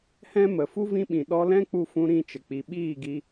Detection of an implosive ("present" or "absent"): present